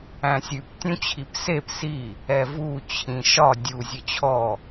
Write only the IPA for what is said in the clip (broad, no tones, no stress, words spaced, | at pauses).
æ̃sʲʉp tʲũt͡ɕʰipsep si | ɛvu t͡ɕʰĩʃɒ dʲu zʲət͡ɕʰɔ